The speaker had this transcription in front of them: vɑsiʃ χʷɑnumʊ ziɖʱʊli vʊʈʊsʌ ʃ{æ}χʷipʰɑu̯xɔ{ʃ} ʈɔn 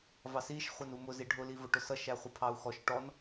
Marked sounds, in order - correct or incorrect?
correct, correct

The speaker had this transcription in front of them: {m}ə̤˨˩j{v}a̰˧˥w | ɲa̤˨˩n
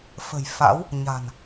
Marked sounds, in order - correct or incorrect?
incorrect, incorrect

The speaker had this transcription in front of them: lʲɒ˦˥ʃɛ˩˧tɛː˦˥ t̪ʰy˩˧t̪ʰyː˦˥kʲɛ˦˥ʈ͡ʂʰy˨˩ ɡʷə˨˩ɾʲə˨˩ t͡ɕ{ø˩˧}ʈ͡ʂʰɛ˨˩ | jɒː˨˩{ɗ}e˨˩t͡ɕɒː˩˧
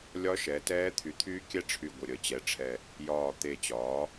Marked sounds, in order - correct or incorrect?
incorrect, incorrect

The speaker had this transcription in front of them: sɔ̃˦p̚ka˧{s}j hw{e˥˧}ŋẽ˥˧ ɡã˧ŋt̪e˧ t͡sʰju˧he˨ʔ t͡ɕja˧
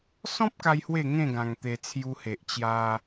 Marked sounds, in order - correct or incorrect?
incorrect, correct

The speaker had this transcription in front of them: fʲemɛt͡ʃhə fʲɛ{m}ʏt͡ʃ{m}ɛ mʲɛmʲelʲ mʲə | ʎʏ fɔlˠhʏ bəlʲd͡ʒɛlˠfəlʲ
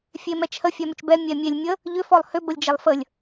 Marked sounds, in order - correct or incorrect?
correct, incorrect

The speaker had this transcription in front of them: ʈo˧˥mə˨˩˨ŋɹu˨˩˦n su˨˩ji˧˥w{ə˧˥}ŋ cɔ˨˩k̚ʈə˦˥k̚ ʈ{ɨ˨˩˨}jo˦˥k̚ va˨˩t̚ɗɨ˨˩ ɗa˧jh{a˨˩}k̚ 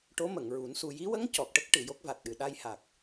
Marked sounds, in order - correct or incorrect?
correct, correct, correct

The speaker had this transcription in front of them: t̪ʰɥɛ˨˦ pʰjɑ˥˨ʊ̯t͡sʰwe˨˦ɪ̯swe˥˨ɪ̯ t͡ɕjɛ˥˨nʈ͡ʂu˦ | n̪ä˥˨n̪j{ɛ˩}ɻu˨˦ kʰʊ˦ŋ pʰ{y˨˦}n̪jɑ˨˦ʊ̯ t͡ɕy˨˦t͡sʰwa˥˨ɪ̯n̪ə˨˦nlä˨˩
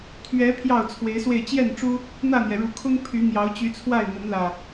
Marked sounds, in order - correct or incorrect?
correct, correct

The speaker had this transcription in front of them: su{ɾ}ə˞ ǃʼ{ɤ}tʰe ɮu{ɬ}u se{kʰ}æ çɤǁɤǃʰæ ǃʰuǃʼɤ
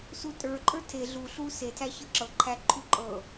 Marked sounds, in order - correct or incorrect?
incorrect, incorrect, correct, incorrect

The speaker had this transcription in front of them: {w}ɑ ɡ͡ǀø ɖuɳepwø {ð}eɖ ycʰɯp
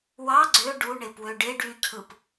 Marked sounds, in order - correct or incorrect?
correct, incorrect

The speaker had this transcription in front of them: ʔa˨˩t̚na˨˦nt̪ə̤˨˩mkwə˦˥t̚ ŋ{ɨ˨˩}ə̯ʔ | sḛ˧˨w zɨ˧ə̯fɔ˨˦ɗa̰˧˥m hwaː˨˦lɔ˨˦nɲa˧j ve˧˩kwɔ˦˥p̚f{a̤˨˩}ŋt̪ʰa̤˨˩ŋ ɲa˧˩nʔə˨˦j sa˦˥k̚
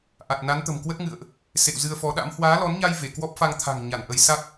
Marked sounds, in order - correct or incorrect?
incorrect, incorrect

